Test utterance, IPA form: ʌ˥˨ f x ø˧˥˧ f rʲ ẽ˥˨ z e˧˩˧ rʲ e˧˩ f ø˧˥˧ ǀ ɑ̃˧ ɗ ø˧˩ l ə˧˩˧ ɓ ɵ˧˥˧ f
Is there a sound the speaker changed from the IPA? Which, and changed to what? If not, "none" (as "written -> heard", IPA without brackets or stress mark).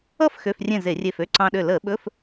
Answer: none